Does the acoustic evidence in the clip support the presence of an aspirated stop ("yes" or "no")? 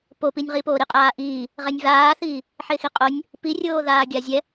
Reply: no